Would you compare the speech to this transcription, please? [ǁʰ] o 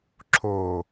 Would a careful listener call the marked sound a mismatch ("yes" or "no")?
no